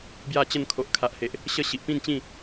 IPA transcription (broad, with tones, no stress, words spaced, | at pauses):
bja˥˧t͡ɕə˥˧n kʰo˨ʔkʰa˨ʔhe˨ʔ | ɕə˦ ɕi˨ʔpĩ˥˧nt͡ɕĩ˥˧